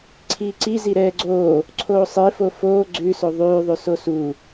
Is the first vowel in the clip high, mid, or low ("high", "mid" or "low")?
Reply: high